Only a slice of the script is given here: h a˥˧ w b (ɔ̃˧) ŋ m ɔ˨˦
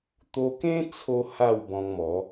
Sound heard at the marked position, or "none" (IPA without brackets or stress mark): ɔ̃˧